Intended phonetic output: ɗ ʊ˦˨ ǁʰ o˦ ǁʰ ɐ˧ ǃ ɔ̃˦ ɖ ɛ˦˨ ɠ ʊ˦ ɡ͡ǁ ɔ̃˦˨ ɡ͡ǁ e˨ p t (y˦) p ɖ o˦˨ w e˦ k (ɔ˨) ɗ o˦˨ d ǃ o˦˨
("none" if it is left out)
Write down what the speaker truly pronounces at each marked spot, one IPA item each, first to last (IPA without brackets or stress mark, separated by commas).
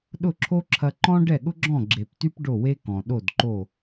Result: y˦, ɔ̃˨